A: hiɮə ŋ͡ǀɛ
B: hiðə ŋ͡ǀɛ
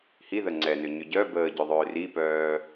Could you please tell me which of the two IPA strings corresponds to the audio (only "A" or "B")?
B